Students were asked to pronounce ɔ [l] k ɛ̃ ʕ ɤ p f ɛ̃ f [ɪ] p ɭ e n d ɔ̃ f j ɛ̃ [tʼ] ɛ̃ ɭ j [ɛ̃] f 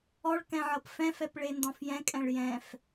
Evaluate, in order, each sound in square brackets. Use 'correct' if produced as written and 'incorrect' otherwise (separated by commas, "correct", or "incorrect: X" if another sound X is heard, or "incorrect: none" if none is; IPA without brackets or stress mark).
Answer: incorrect: ɭ, incorrect: ɛ, incorrect: kʼ, correct